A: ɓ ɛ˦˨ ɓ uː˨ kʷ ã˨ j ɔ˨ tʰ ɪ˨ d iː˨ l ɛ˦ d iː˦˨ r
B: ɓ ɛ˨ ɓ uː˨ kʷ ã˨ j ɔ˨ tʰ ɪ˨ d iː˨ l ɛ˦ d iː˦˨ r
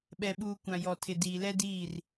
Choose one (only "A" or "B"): B